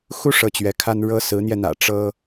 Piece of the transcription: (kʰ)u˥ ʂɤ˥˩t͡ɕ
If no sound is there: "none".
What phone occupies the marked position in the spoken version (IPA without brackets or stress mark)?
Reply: x